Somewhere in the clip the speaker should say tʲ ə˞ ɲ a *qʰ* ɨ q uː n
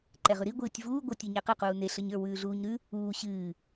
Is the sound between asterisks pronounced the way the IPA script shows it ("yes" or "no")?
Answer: no